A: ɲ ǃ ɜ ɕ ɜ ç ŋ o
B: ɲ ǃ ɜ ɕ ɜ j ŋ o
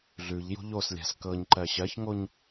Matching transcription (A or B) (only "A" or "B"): A